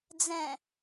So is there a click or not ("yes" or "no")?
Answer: no